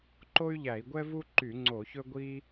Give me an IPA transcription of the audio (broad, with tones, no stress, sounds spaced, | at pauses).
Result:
ǃ o˥ y̯ ʎ æ˧˩˧ i̯ ɡʷ ɛ˥ v u˥ ǃ y˧˩˧ ŋ͡ǀ o˧˩˧ ç ɵ˥ ɡʷ i˥